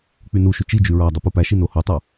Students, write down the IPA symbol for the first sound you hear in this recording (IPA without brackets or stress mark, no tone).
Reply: k͡p